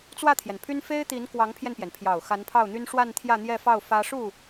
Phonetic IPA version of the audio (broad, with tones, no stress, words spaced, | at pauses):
t͡swä˥˩t̪ʰjɛ˩npʰy˥n fe˥ɪ̯t̪i˧˥n kwɑ˧˥ŋpʰjɛ˧npjɛ˩npʰjɑ˨˩ʊ̯ xa˧˥npʰɑ˥˩ʊ̯n̪y˥n ʂwa˥˧n t̪ʰjä˥˧n̪jɛ˥˧fɑ˥˩ʊ̯ fä˥ ʂu˥˩